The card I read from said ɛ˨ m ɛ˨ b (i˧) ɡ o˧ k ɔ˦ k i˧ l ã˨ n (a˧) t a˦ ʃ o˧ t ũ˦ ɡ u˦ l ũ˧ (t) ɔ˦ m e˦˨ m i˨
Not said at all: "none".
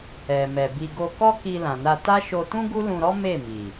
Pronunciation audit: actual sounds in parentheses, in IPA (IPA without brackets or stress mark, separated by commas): i˧, a˧, ɾ